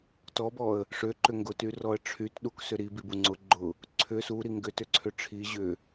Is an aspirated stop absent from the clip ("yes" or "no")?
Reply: no